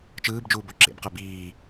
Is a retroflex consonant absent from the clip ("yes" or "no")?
yes